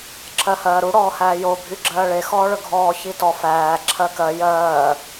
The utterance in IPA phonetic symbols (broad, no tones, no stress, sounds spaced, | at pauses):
ǁʰ ɜ h ɜː ɾ u ɽ ɔː h æː j o bʱ y ɡ͡ǁ ɜː ɭ e x ɔː ɭ ɵ ɡʱ ɔː ç i t ɔ f æː ǁʰ ɜ k ɜ j ɜː